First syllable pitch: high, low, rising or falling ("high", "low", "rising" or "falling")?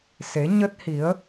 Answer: rising